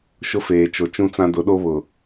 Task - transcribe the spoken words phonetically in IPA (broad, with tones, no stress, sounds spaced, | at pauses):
ʃ ʊ˦ f eː˨ t͡ʃ o˨ t͡ʃ ũ˦ t͡s ã˦ d ʊ˨˦ ɗ o˦ β ʊ˨